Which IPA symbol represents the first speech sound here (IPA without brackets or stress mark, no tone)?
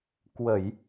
k